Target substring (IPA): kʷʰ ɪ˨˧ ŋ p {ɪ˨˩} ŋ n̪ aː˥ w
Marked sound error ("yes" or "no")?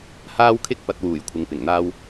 no